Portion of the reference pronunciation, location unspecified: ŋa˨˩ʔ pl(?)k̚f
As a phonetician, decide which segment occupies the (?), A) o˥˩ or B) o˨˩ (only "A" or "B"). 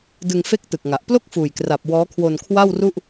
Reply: A